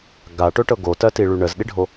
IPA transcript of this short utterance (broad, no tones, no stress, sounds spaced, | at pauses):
ɡ a ʈ ɵ ʈ ɤ ɡ o t ɜ t i ɭ y ɳ ə z ɗ i ɖʱ o